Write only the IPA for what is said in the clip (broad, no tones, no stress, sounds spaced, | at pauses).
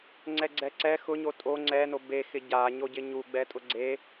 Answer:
ŋ͡ǀ ɛ ɡ͡ǀ ɛ ǀ ɛ x ʊ ɲ o tʼ o ŋ͡ǀ ɛ n o b e x ɪ ɟ a ɲ o ɟ ɪ ɲ u ɡ͡b ɛ tʼ ʊ ɡ͡ǀ e